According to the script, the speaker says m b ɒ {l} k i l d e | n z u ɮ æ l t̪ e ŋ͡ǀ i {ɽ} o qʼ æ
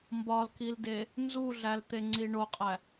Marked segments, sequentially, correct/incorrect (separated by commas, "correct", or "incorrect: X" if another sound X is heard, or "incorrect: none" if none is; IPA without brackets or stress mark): correct, incorrect: ɳ